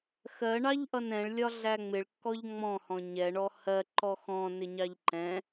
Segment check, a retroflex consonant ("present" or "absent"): present